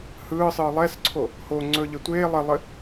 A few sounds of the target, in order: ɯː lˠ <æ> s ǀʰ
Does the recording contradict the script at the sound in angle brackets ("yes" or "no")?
yes